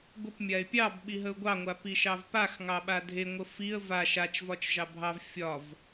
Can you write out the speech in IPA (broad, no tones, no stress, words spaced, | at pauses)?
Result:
ɡʷəp mʲaɪ̯pʲɑbɓi ɦəʊ̯ɡʷɑŋʷa piʃɑvpaxŋɑ ɓadʱeŋʷə fiə̯ va ʃat͡ʃvɒt͡ʃʒɑ bʱɑv fʲɒv